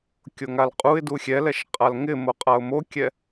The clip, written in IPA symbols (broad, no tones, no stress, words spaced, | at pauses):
kʲoŋalqʼuɪ̯du xʲɛlɛʃ qʼalŋɪmo qʼaʊ̯mokʲɛ